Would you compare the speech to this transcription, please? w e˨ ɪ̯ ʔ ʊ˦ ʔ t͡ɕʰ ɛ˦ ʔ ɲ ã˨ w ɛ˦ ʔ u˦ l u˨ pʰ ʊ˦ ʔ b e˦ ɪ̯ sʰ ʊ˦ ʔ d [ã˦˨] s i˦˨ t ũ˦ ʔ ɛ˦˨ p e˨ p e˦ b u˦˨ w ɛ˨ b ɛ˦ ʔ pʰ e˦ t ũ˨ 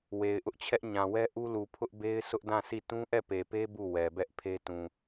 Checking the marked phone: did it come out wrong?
no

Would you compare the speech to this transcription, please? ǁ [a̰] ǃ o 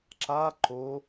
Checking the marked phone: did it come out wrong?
yes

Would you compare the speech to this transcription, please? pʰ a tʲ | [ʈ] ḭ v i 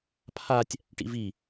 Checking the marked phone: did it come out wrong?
no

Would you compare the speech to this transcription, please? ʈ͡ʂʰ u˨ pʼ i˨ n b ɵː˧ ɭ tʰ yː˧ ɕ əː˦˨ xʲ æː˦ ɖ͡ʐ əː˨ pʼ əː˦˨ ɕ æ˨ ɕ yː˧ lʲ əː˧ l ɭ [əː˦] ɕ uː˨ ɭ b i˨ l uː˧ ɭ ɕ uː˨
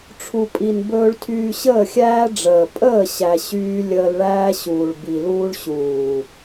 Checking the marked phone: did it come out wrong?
yes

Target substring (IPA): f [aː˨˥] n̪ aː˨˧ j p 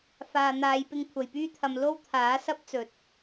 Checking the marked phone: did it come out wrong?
yes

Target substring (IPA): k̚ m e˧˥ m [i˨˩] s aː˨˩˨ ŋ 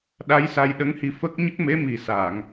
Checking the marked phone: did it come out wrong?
no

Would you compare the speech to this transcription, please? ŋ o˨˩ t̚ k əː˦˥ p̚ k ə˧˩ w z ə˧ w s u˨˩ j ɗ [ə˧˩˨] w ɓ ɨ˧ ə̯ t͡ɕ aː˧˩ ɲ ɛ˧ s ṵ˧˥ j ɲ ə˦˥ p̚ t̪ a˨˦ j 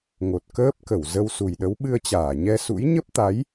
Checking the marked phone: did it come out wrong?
yes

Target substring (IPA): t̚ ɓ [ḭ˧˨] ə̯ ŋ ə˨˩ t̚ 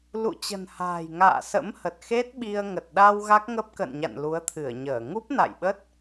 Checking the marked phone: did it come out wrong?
yes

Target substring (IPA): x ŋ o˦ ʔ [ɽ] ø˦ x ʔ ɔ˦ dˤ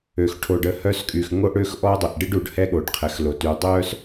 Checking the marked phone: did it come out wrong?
no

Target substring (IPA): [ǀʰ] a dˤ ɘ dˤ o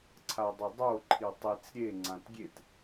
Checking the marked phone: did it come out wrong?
no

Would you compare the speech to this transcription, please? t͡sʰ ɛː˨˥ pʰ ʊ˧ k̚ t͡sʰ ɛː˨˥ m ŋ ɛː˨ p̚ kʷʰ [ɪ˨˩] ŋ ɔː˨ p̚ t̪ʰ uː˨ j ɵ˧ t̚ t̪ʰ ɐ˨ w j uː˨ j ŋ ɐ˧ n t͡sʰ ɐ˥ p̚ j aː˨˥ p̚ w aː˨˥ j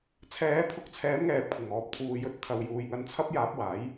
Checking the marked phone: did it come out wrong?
no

